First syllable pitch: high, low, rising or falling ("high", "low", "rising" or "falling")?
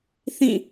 falling